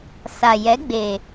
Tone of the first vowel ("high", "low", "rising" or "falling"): low